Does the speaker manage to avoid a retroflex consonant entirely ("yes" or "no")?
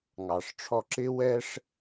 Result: no